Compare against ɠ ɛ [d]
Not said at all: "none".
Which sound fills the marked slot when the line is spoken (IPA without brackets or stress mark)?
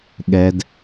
d